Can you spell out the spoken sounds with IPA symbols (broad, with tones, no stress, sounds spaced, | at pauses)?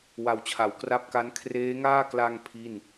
w a˨˩ w t͡ɕʰ a˩˦ w k r a˦˥ p̚ k a˦˥ n kʰ r eː˦˥ ŋ aː˥˩ k l a˧ ŋ pʰ i˥˩ n